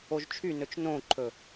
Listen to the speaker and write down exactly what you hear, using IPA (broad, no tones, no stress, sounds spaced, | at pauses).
o ʒ t͡ʃʰ y n ɵ t͡ʃ n õ ǃʰ ɵ